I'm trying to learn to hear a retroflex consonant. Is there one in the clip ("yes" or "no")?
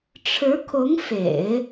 yes